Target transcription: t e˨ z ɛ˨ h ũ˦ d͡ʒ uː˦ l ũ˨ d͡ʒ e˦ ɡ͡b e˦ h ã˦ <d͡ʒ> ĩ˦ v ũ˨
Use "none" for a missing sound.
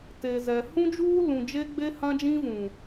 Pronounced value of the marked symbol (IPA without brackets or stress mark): d͡ʒ